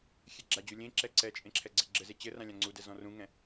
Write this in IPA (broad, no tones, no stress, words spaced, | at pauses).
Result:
xʲeɡ͡ǁad͡ʑu lʲẽǁɛ ǀɛt͡ʃʼẽ ǁʰɛɡ͡ǀɛɡ͡ǁɘze t͡ɕɘrã lʲãŋ͡ǀudɛ zɔ̃rũŋɛ̃